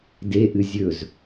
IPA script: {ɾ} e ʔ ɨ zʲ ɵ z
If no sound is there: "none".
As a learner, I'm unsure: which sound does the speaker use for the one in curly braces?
d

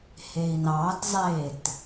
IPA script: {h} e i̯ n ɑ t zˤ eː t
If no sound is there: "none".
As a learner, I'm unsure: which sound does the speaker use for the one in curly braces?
h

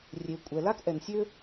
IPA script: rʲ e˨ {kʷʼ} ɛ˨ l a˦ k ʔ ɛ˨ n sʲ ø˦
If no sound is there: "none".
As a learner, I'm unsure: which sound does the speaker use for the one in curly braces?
kʷʼ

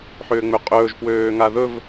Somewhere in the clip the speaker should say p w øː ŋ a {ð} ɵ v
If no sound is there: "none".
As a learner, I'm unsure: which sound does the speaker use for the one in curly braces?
ð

